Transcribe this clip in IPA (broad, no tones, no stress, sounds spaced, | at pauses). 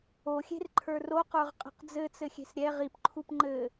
o xʲ e̤ r ǃʰ ə˞ r o q ə˞ ʁ qʼ e̤ q d͡z ɘ t͡s ɘ xʲ e̤ s ɾʲ ɛ ʁ i p ǃʰ u p ŋ͡ǃ ɘ